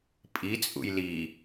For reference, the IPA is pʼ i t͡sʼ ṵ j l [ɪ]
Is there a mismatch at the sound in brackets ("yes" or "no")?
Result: yes